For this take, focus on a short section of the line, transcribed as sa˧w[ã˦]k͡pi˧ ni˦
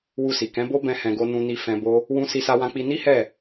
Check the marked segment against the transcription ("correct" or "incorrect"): incorrect